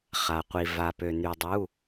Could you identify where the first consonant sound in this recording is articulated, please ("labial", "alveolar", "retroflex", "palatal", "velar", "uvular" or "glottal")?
uvular